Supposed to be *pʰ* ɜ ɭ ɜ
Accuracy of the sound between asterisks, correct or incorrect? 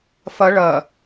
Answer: incorrect